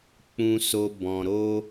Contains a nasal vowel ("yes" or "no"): yes